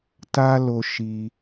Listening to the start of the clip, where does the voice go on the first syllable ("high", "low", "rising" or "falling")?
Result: high